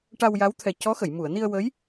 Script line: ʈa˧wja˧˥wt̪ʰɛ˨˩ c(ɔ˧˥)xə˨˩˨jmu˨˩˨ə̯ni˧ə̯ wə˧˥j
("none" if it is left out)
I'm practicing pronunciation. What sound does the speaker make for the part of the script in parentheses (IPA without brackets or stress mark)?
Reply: ɔ˧˥